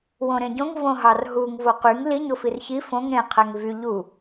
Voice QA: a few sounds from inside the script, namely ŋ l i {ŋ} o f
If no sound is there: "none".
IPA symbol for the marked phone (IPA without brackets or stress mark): ɲ